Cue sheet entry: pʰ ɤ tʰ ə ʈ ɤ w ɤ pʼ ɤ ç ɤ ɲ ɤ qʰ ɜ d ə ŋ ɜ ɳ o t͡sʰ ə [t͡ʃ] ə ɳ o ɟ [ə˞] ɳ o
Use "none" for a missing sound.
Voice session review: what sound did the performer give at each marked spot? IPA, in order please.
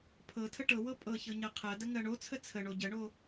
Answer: t͡sʰ, ə

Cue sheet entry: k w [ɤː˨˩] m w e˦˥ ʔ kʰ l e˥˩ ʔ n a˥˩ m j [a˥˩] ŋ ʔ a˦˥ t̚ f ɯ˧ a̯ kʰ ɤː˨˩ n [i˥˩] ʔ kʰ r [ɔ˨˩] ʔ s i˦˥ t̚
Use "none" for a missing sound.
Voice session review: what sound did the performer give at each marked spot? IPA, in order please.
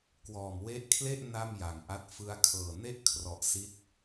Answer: ɔː˨˩, a˨˩, e˥˩, ɔ˨˩

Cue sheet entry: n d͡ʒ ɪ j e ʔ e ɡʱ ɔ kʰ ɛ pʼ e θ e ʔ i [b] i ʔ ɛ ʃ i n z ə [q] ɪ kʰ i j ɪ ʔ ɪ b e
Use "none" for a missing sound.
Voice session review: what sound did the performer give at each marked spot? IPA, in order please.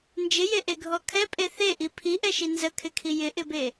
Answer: pʰ, kʰ

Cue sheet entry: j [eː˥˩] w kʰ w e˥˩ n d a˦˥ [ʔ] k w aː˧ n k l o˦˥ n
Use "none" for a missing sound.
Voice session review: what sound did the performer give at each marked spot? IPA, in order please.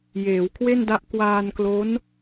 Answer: eː˩˦, ʔ

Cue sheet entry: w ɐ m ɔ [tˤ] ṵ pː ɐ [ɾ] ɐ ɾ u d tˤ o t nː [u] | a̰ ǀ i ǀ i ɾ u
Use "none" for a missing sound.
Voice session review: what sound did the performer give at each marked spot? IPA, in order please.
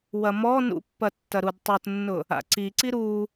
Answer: n, tː, ʊ

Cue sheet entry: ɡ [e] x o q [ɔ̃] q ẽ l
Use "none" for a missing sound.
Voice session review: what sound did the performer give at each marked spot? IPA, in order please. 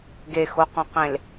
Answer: e, õ

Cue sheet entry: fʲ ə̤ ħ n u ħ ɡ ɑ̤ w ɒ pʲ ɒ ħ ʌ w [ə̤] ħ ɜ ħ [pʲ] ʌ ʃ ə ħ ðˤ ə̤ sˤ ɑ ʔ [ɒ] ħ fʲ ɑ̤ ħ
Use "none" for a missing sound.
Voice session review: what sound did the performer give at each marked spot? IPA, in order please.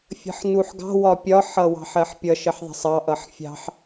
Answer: ɑ̤, pʲ, ʌ

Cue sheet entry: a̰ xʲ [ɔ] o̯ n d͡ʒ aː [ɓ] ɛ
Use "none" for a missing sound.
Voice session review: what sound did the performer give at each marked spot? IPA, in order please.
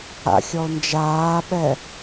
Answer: ɔ, ɓ

